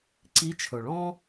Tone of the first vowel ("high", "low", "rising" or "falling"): rising